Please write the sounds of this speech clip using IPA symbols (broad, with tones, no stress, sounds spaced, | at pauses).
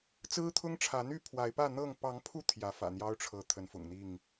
t͡s ɹ̩˦ t̪ʰ ʊ˦ ŋ ʈ͡ʂʰ ä˨˦ n̪ y˥˨ pʰ w a˨˦ ɪ̯ p ä˥˨ n̪ ɤ˥˨ ŋ p ɑ˨˦ ŋ pʰ u˧ t̪ʰ j ä˨˦ f ä̰˨˩ n̪ j ɑ˦ ʊ̯ ʈ͡ʂʰ ɤ˨˦ t̪ʰ ə˨˦ n f ʊ̰˨˩ ŋ n̪ i˥˨ ŋ